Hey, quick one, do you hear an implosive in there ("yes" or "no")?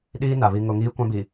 yes